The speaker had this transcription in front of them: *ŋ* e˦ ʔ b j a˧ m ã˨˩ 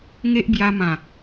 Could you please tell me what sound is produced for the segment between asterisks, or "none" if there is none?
ŋ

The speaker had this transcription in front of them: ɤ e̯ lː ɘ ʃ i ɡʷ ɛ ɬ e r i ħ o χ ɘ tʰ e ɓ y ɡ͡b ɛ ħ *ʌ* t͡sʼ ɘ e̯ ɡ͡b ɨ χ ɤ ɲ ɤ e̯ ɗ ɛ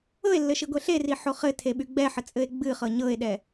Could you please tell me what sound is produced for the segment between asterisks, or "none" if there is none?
ə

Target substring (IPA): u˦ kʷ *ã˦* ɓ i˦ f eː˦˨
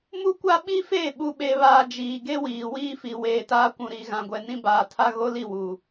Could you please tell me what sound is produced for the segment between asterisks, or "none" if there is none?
a˦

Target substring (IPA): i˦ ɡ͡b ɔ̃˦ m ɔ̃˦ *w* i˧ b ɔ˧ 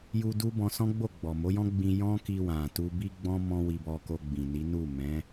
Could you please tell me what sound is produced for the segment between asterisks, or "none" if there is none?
w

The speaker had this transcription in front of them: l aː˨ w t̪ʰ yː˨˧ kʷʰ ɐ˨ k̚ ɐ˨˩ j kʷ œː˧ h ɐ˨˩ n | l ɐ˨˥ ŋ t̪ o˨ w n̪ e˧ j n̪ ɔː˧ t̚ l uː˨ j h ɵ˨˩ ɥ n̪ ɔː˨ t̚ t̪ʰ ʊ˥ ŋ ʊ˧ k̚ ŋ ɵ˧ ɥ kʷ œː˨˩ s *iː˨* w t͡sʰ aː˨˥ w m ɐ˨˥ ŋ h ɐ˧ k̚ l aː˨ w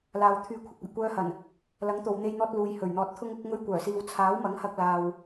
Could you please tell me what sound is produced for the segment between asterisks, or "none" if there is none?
iː˨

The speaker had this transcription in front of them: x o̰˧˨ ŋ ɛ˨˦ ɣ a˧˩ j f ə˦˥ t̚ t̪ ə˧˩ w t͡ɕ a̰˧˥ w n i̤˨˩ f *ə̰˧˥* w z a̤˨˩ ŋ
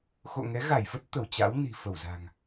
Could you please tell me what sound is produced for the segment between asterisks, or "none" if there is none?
ə˧˩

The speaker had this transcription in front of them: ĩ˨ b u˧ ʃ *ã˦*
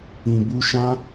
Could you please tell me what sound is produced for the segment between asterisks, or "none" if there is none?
ã˦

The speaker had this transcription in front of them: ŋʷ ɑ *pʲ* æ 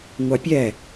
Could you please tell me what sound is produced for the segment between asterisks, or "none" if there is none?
pʲ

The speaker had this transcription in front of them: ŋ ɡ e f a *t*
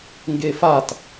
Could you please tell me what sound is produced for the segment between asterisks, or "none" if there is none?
t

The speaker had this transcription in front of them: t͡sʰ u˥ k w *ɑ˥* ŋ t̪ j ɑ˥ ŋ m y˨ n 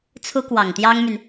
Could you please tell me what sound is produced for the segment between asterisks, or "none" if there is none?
ɑ˨˩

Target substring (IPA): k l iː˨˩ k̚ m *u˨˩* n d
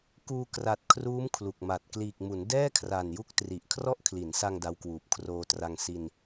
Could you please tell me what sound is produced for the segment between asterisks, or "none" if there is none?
u˩˦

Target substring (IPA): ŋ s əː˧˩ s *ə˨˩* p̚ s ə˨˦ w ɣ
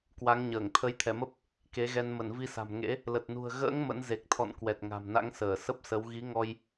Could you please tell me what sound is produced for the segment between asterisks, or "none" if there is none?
ə˦˥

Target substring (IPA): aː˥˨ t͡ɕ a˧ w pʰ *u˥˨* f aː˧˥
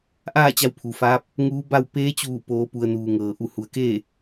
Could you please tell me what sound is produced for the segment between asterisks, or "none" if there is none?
u˩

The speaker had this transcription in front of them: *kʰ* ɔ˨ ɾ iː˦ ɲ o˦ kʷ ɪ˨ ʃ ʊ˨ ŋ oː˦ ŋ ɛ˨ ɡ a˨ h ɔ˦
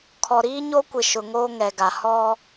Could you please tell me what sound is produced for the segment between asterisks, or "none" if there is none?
kʰ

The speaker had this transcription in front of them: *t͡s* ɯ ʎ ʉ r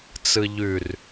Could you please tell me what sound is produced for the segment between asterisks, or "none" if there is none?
t͡s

